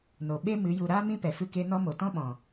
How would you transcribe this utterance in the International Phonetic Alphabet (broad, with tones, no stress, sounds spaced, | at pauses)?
n o˨ ɓ e˦ m ɨ˨˦ j u˨ ɾ aː˦ m ĩ˦ p ɛ˨ f ɨ˧ k e˧ n ɔ˧ m o˨ t ɔ̃˦ ɓ ɔ̃˨